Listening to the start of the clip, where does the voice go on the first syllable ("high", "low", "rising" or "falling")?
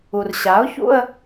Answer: low